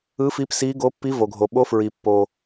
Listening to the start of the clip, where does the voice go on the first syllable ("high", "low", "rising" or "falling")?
rising